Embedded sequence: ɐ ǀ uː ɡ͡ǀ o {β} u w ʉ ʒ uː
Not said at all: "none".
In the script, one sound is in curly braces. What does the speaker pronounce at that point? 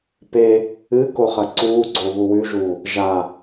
β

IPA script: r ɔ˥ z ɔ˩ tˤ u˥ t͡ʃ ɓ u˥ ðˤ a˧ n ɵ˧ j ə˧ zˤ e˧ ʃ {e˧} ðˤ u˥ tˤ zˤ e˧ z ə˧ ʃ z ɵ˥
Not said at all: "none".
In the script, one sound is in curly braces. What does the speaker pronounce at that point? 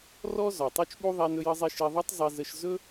e˧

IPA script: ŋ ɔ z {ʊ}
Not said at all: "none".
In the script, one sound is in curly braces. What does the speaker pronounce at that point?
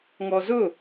ʊ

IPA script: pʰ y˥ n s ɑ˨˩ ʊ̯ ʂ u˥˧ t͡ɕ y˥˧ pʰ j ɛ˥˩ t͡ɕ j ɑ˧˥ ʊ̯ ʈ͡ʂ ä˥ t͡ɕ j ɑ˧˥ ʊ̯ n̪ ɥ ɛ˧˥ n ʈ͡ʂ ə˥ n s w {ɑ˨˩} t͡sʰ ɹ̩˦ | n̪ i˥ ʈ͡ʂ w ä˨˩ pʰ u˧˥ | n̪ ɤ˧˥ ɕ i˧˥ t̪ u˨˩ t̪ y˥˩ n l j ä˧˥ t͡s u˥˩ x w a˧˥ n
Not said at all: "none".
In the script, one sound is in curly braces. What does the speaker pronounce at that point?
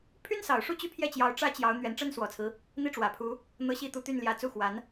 ɔ˨˩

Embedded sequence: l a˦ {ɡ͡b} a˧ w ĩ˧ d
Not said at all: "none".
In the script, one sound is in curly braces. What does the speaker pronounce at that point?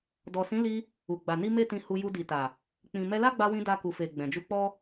ɡ͡b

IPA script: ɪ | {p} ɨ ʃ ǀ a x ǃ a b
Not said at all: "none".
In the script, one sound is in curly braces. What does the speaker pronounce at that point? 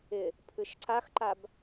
pʰ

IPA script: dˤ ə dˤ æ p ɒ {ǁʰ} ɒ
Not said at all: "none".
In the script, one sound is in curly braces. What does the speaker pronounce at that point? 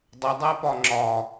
ŋ͡ǁ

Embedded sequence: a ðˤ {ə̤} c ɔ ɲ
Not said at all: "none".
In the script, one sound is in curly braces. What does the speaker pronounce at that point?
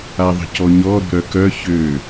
ə̤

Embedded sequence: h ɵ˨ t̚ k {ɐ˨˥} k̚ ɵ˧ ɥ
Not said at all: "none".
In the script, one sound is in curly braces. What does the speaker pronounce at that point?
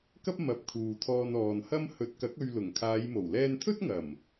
ɐ˨˥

